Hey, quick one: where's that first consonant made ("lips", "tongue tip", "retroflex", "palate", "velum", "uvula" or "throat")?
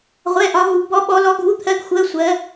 uvula